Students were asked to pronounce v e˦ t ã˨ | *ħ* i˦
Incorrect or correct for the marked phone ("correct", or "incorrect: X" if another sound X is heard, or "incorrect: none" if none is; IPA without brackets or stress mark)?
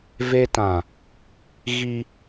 incorrect: ɣ